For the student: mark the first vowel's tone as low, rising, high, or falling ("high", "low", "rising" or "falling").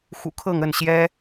low